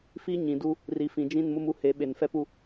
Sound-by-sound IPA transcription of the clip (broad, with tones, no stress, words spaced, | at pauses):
fi˦ɲĩ˨du˦ | ri˨fĩ˨ d͡ʒĩ˦˨nmʊ˦mu˦ he˨˦ ɓe˨nfɛ˦pu˦